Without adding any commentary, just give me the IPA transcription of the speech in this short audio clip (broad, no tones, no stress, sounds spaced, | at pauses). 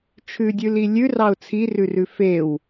t͡ʃʰ ʉ dʲ ʉ l i lʲ ʉ r ɑ ʊ̯ t͡sʰ i r ʉ r ʉ f e w